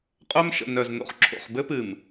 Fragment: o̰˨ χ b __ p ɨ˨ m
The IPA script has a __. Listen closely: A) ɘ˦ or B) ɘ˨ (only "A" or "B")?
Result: A